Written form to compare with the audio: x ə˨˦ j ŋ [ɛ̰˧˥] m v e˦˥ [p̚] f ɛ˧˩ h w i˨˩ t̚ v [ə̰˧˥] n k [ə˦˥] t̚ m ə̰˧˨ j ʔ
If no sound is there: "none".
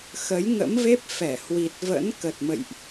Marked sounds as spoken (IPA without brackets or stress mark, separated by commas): ə̰˧˥, p̚, ə̰˧˥, ə˨˩